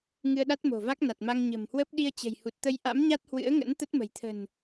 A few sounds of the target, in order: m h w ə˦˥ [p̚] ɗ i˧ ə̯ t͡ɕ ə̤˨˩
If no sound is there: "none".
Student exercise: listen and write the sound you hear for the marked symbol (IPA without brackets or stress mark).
p̚